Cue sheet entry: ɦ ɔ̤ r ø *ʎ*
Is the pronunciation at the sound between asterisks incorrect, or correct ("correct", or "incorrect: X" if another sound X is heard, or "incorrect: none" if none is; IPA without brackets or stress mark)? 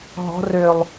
incorrect: lˠ